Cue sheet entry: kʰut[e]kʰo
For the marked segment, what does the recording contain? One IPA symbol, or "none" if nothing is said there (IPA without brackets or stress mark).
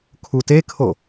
e